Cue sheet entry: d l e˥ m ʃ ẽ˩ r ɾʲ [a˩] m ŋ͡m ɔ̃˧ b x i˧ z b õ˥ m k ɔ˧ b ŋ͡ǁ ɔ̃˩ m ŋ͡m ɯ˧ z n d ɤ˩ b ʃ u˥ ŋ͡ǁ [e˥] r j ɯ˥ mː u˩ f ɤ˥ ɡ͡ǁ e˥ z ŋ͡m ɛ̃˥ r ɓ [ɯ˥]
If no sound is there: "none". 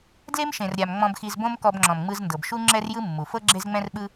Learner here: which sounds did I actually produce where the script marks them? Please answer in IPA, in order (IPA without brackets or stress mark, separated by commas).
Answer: a˩, ɛ˥, ɯ˥